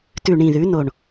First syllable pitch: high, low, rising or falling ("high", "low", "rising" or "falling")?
low